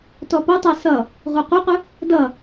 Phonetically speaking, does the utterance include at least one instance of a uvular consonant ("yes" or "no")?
yes